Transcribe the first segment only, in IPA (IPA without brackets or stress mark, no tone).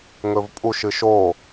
ŋ